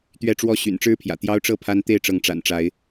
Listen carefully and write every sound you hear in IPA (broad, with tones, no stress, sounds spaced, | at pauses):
t̪ ɥ ɛ˦ ʈ͡ʂ w ɔ˦ ɕ y̰˨˩ n ʈ͡ʂ ɻ̩˦ pʰ j ä̰˨˩ t̪ j ɑ˦ ʊ̯ ʈ͡ʂ ɤ˥˨ pʰ a˦ n t̪ e˥˨ ɪ̯ ʈ͡ʂ ɤ˨˦ ŋ ʈ͡ʂ a̰˨˩ n ʈ͡ʂ a˨˦ ɪ̯